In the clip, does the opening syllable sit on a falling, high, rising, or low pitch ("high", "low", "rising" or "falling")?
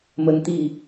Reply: high